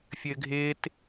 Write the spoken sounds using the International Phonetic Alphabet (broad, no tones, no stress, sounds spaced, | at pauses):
fʲ ɘː ɡʱ ɪː t